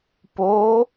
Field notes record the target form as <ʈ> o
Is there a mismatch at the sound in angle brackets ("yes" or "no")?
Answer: yes